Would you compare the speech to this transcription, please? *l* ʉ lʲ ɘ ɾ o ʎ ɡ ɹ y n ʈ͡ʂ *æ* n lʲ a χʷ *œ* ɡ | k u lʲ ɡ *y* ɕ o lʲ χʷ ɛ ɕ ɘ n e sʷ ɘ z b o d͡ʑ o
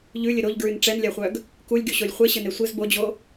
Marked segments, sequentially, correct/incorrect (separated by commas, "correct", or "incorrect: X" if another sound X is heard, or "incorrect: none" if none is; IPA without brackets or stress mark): incorrect: ʎ, incorrect: ɛ, correct, correct